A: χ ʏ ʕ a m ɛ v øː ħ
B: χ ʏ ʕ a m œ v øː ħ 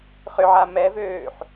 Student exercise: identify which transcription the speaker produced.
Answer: A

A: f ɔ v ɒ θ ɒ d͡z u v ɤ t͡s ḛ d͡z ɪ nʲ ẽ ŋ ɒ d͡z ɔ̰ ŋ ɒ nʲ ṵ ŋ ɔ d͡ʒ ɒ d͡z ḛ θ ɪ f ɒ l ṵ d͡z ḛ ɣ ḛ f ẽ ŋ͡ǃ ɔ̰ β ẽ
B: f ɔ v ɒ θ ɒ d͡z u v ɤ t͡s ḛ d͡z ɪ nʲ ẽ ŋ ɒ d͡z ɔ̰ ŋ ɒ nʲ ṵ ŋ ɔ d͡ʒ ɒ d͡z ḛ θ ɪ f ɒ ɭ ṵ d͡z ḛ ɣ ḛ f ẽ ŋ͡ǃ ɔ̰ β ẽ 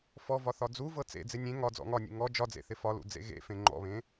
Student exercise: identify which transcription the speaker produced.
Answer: A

